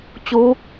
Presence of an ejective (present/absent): absent